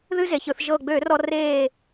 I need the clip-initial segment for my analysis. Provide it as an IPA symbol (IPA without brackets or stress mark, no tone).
ð